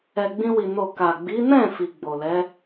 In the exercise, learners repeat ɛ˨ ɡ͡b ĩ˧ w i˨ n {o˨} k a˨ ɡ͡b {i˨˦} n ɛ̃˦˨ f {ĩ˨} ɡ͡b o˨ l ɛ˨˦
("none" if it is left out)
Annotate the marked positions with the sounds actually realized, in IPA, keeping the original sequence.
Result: o˨, i˨˦, i˨

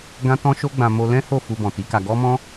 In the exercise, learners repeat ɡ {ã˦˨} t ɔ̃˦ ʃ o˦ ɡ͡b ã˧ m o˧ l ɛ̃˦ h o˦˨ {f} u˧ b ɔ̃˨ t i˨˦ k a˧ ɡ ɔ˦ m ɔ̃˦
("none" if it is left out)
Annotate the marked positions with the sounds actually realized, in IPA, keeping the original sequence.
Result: ã˦, f

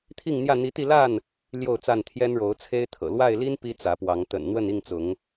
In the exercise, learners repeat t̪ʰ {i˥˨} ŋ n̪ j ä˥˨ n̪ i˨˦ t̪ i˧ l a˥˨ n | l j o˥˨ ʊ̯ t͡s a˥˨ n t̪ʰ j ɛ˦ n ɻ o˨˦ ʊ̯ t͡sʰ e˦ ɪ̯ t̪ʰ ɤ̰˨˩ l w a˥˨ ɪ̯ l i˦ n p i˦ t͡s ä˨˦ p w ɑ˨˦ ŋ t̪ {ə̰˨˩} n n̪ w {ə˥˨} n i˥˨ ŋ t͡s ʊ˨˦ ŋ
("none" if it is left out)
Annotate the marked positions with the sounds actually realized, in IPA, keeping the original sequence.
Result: i˥˨, ə̰˨˩, ə˥˨

